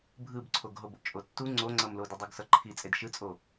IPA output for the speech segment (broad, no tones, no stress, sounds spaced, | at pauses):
bʱ ɯ b ǀʰ o ɡ ɦ o b o̰ t͡ʃʼ o tː u ŋ͡ǀ o ŋ͡ǀ ʌ m l o d ɯ dˤ u ɡ s ʌ ǃʰ i t͡sʼ e d ʃ ɯ t͡sʼ o